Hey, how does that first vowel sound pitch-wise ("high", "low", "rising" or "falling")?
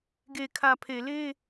low